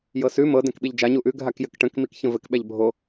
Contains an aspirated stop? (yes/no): no